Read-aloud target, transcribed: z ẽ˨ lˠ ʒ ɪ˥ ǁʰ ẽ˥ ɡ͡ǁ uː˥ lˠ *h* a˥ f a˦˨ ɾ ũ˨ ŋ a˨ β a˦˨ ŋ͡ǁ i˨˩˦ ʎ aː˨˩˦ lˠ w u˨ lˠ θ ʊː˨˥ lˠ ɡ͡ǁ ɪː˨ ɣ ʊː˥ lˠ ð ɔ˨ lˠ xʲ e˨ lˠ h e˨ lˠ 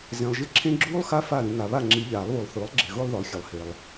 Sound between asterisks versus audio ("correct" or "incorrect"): incorrect